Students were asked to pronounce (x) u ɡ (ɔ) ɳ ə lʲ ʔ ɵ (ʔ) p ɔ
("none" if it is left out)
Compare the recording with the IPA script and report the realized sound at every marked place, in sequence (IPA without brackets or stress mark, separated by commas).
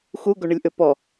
x, o, none